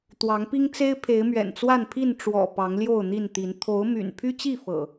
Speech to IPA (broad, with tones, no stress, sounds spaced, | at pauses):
t̪ w ɑ˨˦ ŋ p i˦ ŋ t͡s e˦ ɪ̯ pʰ e˨˦ ɪ̯ m ɥ ɛ̰˨˩ n t͡s w a˥˨ n pʰ i˥˨ n ʈ͡ʂ w ɔ̰˨˩ p ɑ˨˦ ŋ l j o˥˨ ʊ̯ n̪ i˥˨ n t̪ i˨˦ n t̪ʰ o˨˦ ʊ̯ m y̰˨˩ n pʰ y˦ t͡ɕ i˥˨ f ɤ̰˨˩